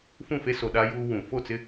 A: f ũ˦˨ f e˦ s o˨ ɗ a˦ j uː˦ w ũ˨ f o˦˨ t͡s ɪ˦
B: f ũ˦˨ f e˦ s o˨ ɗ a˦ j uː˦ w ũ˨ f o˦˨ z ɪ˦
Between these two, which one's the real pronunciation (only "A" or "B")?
A